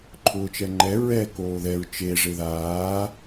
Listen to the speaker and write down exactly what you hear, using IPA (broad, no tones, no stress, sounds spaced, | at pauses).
ǃʰ ʊː t͡ʃ ɛ ŋ͡ǃ ɛ ɹ ɛ k oː ð ɛ ɹ t͡ʃ e ʐ e ð aː